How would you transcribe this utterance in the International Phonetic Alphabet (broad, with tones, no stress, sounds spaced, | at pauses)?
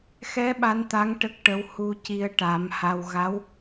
x ɛ˧˥ ɓ a˧˥ n t̪ a˧˥ ŋ ʈ ə˦˥ k̚ ʈ ə˧˥ w h u˧ c i˧ ə̯ ʈ a˨˩˦ m h a˧ w ɣ a˧˥ w